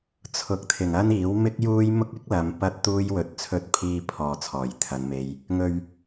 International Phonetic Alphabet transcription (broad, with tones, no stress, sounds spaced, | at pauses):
t͡sʰ ʊ˨˥ k̚ t̪ʰ ɪ˨˩ ŋ ɐ˥ n iː˨˥ w m ɪ˥ k̚ j uː˥ j m ʊ˥ k̚ ɪ˥ k̚ l ɐ˨˧ m p ɐ˥ t̚ t̪ uː˥ j w ɵ˨ t̚ t͡sʰ ɵ˧ t̚ pʰ iː˧ pʰ ɔː˨˩ t͡sʰ ɔː˨˩ j t̪ʰ ɐ˨˧ n m e˧ j | ŋ ɵ˨ ɥ